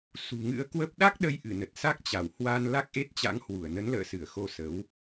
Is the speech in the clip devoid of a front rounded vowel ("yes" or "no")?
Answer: yes